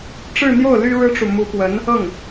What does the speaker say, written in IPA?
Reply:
ʈ͡ʂɻ̩˥˧n̪jo˥˩ʊ̯ ly˥ɻɻ̩˥ʈ͡ʂu˨ mu˧˥pwə˧˥n | ɤ˥˩ŋ

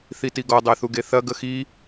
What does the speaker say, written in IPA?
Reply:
θitiɡɔ dˤɛθuɡeθɐ ɡəxi

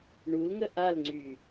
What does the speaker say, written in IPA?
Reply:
ɳulŋə ʔalŋ͡ǀy

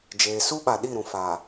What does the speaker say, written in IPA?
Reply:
d͡ʒeː˨su˦ɓa˨ ɗi˦˨ɾũ˨faː˨

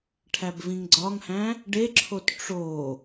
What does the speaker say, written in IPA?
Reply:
ʈʰæbvĩŋɡ͡ǀɒŋhæ̃ | ɖeǁʰot ʈ͡ʂo

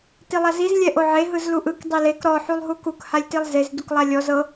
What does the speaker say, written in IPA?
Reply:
tilˠaziz lʲɛʔoʕe ɦɯzluʔɯk dˤelek ɾɔ ħulˠɦukuk halʲtilˠzez duklˠalʲɔ zɤ

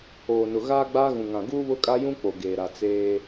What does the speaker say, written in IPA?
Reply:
oː˨nʊ˨ ɣaː˦ɡ͡baː˦ɣũ˨ŋã˨ ɡuː˦βʊ˦ kʼa˦jũ˦ k͡po˨ ɡeː˨ɾa˨ t͡seː˦

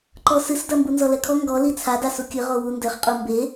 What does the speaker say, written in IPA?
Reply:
ǃɔsɨsdɐ mbunzɔlɛkʰɔ ŋɡɔ lit͡sʰa dasukʲɨ ʁowundɘχ qʼumbe

